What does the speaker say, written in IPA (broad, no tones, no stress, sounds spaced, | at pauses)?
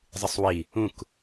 zˤ ɨ sˤ w i | ũ k